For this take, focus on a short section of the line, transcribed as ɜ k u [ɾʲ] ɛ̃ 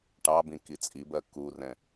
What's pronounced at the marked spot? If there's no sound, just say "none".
r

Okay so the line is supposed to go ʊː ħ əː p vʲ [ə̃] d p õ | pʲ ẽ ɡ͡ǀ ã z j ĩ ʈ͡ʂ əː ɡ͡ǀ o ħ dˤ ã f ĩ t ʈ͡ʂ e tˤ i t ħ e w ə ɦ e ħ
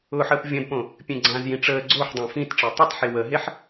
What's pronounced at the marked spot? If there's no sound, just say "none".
ə̃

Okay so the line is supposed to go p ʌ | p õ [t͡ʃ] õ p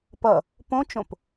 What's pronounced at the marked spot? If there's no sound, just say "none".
t͡ʃ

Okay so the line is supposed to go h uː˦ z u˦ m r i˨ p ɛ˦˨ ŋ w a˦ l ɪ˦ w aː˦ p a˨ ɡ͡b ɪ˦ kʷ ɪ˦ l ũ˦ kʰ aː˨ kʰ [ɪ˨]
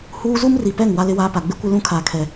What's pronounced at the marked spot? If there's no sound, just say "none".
ɛ˨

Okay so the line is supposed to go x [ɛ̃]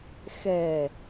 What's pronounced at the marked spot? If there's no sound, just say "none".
ɛ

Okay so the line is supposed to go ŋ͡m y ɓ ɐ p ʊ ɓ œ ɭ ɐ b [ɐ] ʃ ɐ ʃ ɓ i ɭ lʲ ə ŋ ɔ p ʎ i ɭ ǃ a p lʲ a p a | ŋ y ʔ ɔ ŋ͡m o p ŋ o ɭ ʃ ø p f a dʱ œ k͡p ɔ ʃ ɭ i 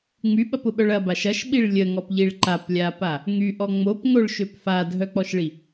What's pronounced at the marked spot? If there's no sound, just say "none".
a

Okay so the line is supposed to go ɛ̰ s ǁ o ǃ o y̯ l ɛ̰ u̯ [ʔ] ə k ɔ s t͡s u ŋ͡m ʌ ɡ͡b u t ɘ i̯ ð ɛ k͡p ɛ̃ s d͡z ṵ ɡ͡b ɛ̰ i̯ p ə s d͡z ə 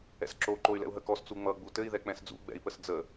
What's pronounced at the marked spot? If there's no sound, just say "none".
ɦ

